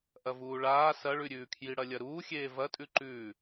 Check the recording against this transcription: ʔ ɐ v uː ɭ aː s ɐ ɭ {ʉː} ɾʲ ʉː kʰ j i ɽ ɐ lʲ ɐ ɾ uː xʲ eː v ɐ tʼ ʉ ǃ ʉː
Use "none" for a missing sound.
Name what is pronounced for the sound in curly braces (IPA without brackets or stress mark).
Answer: ʉ